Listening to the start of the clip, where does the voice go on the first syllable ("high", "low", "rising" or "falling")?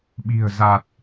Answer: low